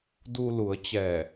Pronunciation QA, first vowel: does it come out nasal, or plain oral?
oral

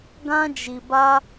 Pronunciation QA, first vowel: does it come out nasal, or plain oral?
nasal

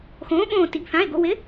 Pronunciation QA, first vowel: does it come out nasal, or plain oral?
nasal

